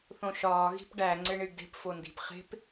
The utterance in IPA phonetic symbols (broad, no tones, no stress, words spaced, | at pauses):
θõʃɒː ɣi̤pɖæ ŋ͡ǀeɳiɖde̤p fondi̤p χe̤p